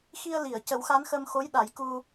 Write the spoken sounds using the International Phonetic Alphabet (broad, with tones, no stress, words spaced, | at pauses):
xi˧ə̯li˨˩˨ə̯ cə˨˩˦wxa˧˥nxə˧mxo˧˥j ɗa˨˩˦jku˧